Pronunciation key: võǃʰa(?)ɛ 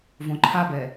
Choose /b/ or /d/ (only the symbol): b